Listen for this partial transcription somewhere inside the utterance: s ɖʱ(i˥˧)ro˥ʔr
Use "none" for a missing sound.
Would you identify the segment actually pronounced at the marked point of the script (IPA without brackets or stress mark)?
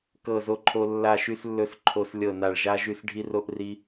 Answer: i˥